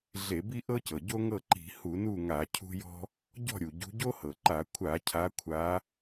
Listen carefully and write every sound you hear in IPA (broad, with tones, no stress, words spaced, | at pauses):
ɮe˧˩˧bi˥ʔɤ˥cɤ˩ ɟo˥ŋɤ˥˨ǃi̤˧˩˧ hu˧˩˧nu˥˨ŋa˧˩˧ cʰṳ˥jɔ̤˥ | ɟɔ̤˥˨ɾʲu˩ ɟṳ˨˦ɟo˥hɤ˩ǃa˧˩˧ kʷʰa˧˩˧ cʰa˨˦kʷʰa˨˦